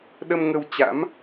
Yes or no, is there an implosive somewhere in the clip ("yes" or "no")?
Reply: yes